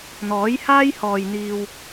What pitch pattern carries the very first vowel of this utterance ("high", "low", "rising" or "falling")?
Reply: rising